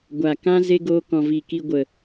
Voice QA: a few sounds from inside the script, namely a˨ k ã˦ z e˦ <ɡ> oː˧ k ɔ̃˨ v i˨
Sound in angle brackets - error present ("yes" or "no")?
no